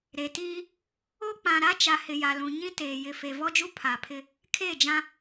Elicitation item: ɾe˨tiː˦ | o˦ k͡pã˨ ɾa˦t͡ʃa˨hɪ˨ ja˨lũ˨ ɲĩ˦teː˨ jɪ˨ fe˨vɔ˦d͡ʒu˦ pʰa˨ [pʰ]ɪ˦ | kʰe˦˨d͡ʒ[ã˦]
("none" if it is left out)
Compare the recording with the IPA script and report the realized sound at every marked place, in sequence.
pʰ, ã˦

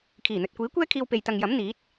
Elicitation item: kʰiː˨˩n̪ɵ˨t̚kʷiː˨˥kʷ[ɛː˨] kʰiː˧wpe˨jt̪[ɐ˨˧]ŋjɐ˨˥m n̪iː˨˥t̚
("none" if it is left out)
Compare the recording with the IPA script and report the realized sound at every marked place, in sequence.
ɛː˥, ɐ˨

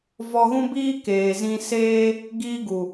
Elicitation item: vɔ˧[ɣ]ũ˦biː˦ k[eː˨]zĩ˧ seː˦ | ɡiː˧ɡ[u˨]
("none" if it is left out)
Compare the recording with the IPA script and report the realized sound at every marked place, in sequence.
ɣ, eː˨, u˨

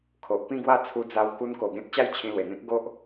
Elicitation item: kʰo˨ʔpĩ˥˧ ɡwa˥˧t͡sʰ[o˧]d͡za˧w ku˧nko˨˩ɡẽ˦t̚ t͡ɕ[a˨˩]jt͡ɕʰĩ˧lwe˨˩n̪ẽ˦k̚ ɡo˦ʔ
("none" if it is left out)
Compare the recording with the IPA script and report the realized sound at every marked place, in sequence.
u˧, a˦

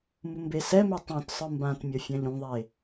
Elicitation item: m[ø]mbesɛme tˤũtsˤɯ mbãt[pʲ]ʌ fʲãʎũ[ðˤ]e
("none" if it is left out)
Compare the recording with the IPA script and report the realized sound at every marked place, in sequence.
u, mʲ, ðˤ

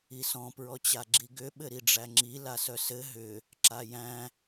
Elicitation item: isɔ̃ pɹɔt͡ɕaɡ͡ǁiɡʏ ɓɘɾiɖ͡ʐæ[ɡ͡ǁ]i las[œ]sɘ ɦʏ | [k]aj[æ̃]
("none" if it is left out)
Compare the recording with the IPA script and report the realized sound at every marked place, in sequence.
ŋ͡ǁ, œ, ǁ, æ̃

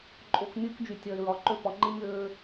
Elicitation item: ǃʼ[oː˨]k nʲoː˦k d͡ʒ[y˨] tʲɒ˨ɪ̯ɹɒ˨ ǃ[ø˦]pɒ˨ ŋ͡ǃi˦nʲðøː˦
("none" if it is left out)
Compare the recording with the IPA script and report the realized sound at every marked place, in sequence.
o˨, y˨, ø˦

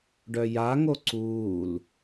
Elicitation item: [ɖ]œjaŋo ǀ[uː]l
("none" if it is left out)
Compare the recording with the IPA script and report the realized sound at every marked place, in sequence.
ɖ, uː

